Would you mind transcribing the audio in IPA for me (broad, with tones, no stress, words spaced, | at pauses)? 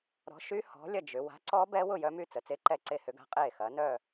ɾɔ̤˨˥ʃy˦˥ hɔ̤˨˥lʲɐ˥˨ d͡ʒʏ˩˧ wa̤˨˥ǀɔ˦˥ bɛ˦˥wʊ˥˨ jœ˦˥my˥˨t͡sə˩˧ t͡se˦˥ǃɛ˥˨ǀe˥˨ hʏ˦˥ɡa̤˦˥qʼeː˥˨xɐː˨˥ nœː˥˨